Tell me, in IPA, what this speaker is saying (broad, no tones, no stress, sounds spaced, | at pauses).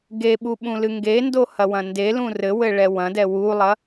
ɡ e ɓ u ɓ ũ l ɨ ŋ ɡ e n d o h ɐ w ɐ̃ n d e l ũ r ɘ w ɘ ɭ ɛ w ɐ̃ d ɛ w u lˠ ɐ